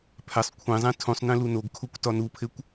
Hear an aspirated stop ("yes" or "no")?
yes